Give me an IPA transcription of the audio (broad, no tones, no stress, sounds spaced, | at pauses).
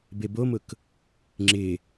b e b o m ʊ k | ŋ͡ǁ ɪ